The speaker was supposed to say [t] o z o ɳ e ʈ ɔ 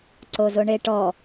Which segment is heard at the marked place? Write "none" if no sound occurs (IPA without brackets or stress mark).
ǀ